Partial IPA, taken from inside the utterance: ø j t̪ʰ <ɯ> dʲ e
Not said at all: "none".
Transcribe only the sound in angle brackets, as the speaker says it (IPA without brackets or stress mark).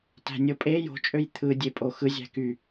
ɯ